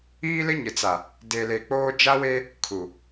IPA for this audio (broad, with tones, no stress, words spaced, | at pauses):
iː˦lɪ˦ɲɪ˨t͡sa˨ | de˨le˨k͡poː˦ d͡ʒa˦we˦ | kʰu˨